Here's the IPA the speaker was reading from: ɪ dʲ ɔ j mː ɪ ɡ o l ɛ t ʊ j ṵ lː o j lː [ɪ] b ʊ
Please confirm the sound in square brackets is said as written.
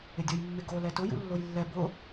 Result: no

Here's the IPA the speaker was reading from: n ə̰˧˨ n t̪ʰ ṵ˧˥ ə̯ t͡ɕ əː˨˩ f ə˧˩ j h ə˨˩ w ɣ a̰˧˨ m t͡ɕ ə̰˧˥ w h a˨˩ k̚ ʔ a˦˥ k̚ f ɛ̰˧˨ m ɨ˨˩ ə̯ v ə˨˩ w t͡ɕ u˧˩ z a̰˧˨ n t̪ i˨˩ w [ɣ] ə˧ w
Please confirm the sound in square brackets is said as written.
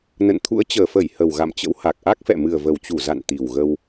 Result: yes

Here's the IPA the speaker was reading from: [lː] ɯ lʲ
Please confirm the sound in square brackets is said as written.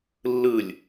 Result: yes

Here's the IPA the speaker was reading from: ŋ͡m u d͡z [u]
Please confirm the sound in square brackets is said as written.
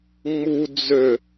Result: no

